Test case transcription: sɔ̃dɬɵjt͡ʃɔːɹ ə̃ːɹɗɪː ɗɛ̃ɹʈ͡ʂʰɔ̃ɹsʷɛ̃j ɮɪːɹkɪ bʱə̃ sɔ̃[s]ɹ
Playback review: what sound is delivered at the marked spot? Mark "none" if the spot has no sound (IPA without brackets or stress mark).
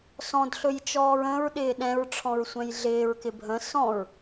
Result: none